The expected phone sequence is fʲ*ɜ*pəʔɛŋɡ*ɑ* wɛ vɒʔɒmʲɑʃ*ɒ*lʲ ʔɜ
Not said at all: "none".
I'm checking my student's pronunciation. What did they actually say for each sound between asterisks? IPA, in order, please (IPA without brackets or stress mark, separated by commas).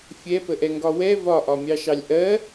ɛ, ɒ, ɑ